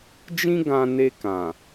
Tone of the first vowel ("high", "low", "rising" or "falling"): high